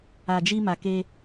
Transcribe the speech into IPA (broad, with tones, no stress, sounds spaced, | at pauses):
a˨ d͡ʒ i˧ m a˨ k e˧